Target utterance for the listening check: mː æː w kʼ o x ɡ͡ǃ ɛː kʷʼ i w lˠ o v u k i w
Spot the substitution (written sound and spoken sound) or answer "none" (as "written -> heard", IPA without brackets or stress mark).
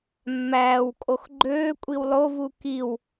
ɛː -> øː